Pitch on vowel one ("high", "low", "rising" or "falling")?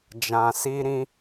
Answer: low